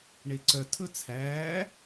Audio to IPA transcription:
ɳ e ǀ œ tʰ ɵ t͡sʰ æː

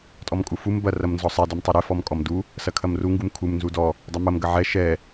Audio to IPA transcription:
tʼ ɔ m kʼ u f u m b ɐ r ɐ m n z ɔ sˤ ɛ d u m tˤ u ɾ ɛ f ɔ m kʼ ɔ m d u | s ɐ kʰ ɐ m r u ŋ ɡ u m kʰ u m n z u d ɔ | dˤ ɐ m ɐ m ɡ ɐ ʕ ɛ ʃ ɛ

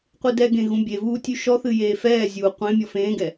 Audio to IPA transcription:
qʷ ɨ d ɛ ɡ ẽ ɣ ũ bʲ e v uː tʲ ʉ ʃ ɔ θ ɨ j eː f ɛː zʲ uː qʷ ẽ mʲ ɔ f ẽː ɡ ɛ

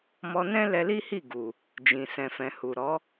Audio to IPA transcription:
m ɔ˧ n ɛ̃˦ l ɛ˧ l i˦ h i˦˨ ɡ u˨ | d͡ʒ ĩ˨ s ɛ̃˨ f ɛ̃˨ h u˨ ɾ ɔ˨˦

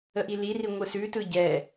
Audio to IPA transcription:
ə ʔ i l i r i ŋʷ ɯ s ʉ t ɯ ɟ ɛ

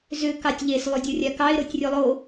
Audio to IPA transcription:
z ʏ k ɑ tʲ ʎ e s lˠ y dʲ o rʲ a k ɑ ɪ̯ ɾ o tʲ rʲ o lˠ o

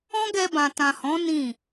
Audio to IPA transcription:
ɔ̃˦ ɡ ɛ˧ b ã˨ t ã˨ h ɔ̃˨˦ n ĩ˦˨

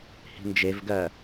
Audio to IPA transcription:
h i̤ n d͡ʒ e v ɡ ɜ

